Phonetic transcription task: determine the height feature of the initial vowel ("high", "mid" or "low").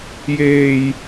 mid